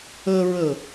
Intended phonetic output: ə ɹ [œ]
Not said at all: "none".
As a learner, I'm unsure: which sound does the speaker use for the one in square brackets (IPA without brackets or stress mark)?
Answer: ə